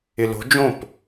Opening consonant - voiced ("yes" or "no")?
yes